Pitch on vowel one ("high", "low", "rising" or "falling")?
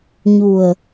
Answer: low